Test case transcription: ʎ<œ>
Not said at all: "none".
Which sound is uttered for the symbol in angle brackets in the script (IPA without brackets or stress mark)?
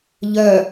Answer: œ